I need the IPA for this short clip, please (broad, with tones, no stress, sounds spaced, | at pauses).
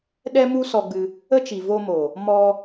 ɗ ɛ˦ m u˦ s ɔ˧ ɡ͡b ɨ˧ | ə˦ t͡ʃ i˨ v o˧ m o˨ | m ɔ˧